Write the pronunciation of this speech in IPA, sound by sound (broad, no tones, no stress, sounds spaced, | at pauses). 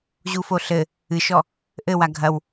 ʑ u f o ɬ ɘ | ɨ ʃ ɔ | ʔ ɘ w a ɡʱ ɐ w